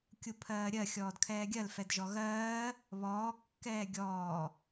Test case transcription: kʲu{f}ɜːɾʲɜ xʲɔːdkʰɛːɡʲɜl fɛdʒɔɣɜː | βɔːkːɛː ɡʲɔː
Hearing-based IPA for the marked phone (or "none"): pʰ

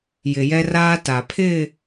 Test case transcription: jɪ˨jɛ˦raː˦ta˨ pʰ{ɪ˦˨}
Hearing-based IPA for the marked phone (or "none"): ɪ˦˨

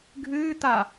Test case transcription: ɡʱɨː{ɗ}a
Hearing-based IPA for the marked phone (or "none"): t̪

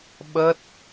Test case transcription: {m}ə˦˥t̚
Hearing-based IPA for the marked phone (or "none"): ɓ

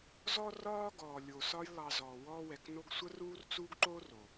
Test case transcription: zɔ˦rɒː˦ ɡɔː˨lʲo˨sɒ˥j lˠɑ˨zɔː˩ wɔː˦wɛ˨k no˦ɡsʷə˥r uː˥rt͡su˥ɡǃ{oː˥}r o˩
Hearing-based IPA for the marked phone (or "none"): oː˥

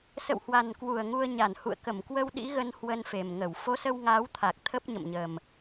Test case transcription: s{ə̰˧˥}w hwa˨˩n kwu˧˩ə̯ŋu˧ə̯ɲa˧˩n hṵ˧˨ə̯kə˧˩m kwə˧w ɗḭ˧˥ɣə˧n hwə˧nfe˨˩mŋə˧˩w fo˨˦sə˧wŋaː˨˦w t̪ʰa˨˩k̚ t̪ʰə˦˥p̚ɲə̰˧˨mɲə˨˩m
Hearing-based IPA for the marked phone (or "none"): ə̰˧˨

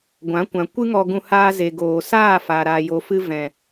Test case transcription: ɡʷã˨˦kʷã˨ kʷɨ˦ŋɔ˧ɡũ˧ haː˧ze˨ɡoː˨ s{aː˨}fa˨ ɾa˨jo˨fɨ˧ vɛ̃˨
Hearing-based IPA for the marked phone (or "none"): aː˦˨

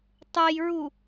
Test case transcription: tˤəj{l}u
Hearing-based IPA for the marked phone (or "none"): ɹ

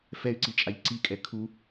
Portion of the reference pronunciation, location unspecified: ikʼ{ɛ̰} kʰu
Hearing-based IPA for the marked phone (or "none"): ɛ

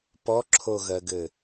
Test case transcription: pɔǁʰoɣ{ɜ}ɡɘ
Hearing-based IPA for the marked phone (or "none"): ɜ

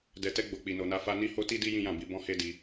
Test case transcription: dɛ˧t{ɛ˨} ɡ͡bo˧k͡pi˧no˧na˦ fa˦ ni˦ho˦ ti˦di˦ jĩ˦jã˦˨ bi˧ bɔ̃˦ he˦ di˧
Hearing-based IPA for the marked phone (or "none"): ɛ˦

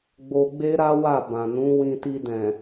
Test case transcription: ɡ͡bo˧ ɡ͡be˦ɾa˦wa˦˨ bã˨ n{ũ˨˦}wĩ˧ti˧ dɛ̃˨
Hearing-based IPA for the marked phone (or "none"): ũ˨˦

